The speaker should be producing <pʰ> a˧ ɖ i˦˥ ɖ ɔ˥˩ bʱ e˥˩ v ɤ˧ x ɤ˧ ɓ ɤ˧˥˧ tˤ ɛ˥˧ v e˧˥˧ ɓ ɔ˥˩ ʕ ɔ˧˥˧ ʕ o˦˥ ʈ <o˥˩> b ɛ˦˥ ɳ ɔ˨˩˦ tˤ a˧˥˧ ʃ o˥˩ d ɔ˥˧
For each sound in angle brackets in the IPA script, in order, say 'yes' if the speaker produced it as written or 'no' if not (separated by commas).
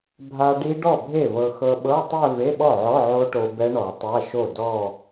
no, no